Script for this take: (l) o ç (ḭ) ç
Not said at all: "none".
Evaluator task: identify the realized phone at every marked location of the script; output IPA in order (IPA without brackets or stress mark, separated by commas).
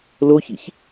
l, ḭ